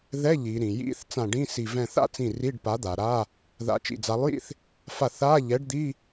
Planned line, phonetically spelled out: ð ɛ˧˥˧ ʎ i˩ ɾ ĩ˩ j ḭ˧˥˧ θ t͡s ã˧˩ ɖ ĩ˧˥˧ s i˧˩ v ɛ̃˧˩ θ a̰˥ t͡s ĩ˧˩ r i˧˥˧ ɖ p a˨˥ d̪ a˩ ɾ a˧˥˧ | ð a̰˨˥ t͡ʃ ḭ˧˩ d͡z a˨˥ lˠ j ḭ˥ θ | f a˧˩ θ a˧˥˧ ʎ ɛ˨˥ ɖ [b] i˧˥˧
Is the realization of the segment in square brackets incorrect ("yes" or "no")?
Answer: yes